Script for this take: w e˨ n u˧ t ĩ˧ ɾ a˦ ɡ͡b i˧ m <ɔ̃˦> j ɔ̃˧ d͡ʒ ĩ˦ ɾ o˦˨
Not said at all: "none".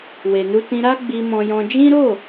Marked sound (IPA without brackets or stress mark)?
ɔ̃˧